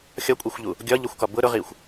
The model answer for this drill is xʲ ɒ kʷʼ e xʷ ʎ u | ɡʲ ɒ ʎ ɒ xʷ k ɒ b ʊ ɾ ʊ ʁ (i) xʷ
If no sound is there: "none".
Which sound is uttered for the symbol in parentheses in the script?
i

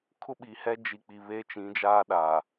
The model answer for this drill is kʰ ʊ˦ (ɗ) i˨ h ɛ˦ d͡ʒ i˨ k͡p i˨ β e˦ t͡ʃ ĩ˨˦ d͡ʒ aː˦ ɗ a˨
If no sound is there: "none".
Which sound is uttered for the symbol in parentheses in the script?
ɓ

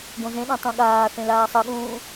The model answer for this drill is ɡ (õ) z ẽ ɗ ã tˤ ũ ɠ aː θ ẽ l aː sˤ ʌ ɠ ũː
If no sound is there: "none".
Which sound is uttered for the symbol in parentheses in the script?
õ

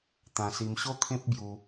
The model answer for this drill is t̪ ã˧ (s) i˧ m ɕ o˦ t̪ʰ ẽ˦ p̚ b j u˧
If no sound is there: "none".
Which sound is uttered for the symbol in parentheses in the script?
s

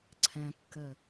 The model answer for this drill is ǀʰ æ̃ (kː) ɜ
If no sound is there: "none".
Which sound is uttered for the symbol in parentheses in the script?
kː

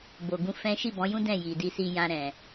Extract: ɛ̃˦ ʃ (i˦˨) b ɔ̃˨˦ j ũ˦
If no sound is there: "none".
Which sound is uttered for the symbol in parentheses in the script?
i˦˨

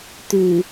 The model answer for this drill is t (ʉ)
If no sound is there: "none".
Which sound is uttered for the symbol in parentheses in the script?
ʉ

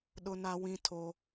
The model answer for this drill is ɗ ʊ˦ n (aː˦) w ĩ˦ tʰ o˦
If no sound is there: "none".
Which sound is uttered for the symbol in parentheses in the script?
a˦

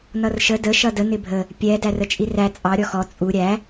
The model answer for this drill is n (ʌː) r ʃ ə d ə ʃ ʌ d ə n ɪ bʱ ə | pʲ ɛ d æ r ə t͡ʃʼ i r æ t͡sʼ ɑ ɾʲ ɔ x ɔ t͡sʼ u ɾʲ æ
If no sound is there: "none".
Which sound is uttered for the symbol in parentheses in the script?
ʌ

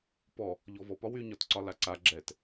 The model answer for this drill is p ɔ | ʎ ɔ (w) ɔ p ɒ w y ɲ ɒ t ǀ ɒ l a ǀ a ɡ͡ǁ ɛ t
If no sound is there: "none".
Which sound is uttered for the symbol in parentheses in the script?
v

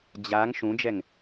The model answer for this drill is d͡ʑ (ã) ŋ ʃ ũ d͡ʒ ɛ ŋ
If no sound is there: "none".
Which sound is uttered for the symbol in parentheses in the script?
a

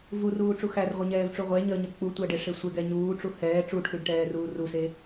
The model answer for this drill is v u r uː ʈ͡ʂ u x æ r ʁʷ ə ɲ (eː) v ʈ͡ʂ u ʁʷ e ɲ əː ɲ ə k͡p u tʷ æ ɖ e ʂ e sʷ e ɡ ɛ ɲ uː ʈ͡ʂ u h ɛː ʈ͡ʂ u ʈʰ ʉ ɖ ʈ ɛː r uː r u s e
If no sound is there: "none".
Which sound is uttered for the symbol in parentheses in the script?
ɛː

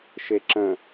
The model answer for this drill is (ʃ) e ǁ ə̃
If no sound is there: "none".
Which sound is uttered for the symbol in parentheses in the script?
ʃ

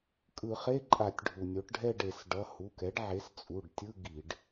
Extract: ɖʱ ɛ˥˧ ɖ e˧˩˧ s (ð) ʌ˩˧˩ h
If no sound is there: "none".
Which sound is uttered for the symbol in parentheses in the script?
ɖ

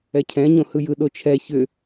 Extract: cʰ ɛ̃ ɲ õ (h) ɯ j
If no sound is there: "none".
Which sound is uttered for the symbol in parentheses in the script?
h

